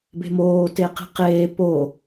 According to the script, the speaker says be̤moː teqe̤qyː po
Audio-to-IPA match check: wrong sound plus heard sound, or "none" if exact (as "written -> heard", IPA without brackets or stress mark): yː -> eː